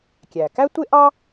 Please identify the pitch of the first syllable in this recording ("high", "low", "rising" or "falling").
low